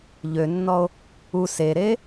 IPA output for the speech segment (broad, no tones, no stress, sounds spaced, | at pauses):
ʎ ø nː ɔ o̯ | u s e ɾ e